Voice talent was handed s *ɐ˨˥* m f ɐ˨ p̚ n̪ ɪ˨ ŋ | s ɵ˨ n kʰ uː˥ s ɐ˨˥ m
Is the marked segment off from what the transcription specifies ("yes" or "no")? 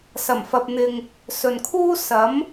yes